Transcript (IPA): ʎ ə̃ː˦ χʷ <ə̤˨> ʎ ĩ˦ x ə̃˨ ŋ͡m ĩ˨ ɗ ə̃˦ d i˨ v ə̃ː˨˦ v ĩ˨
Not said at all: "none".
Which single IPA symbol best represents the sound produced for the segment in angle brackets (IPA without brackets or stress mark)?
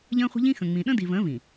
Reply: ə̤˦